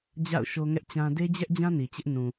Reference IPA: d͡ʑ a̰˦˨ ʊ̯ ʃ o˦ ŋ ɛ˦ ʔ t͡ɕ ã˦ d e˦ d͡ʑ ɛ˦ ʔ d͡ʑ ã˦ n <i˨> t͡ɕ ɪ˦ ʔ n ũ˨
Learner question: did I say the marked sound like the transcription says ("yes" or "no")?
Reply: yes